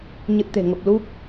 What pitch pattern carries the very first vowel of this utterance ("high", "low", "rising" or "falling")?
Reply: low